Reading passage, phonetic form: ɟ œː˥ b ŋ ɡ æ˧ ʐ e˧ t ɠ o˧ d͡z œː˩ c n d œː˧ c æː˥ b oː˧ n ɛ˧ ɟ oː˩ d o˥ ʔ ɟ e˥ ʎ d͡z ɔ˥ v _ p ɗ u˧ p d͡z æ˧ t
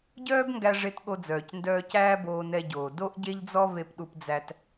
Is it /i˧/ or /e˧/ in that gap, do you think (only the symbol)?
e˧